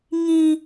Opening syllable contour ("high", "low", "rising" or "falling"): high